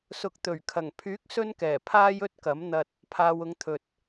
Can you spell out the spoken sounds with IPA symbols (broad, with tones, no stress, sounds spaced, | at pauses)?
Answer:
s ʊ˨ k̚ t̪ ɵ˨˩ ɥ kʰ ɐ˨˩ ŋ pʰ yː˨˥ k̚ s ɵ˥ n k ɛː˨˩ pʰ aː˥ j ɵ˥ t̚ k ɐ˨˥ m n̪ ɐ˧ t̚ | pʰ aː˨ w ʊ˨˧ ŋ t̪ʰ ɵ˨ t̚